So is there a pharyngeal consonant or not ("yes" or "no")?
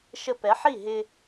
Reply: yes